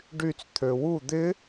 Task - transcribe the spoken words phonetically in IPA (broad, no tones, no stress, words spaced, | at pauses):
ɖyt͡s t̪ʰøwu d̪ɪ